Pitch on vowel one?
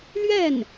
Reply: falling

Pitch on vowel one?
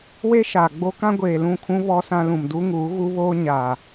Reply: high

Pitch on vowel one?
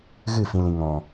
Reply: falling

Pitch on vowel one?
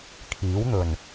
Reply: rising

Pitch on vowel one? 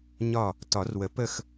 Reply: falling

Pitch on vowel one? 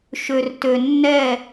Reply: low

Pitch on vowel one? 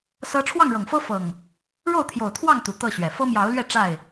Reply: high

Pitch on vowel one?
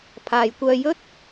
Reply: low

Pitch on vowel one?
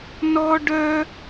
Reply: high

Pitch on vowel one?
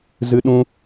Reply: high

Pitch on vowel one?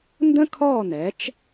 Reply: high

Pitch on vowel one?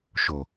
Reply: low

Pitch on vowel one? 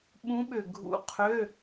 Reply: rising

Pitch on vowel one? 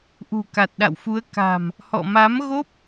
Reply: low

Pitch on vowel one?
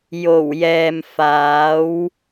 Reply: low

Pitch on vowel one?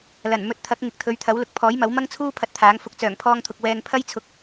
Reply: low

